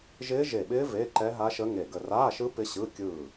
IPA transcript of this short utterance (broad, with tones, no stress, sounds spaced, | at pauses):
ʒ ɪː˦˥ ʒ e˧˩ ɓ ɪː˦˥ v e˧˥˧ ǃ ɛ˦˥ ɦ a˦˥ ʃ ə˦˥ ŋ e˧˩ ɡ ə˧˩ r aː˧˥˧ ʃ ɯ˦˥ p ɪ˦˥ ɕ ɯ˧˥˧ kʲ ɯː˧˩